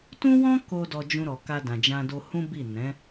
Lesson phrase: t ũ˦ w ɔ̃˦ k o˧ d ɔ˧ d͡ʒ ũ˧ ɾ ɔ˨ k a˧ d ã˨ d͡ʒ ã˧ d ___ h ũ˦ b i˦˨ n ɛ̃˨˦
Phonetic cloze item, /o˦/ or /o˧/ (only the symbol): o˧